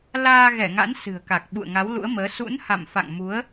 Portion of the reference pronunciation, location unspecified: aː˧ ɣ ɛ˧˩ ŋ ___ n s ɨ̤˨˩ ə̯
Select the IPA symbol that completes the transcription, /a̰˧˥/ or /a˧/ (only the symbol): a̰˧˥